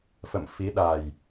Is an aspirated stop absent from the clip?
yes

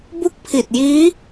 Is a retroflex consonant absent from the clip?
yes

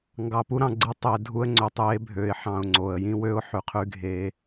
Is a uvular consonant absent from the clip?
no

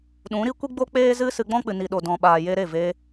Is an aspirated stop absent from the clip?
yes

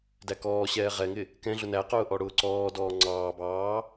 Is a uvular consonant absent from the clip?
no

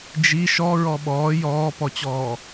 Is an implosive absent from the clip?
no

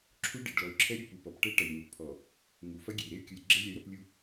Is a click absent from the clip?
no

